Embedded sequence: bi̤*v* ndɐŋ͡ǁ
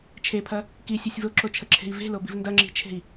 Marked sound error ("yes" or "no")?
no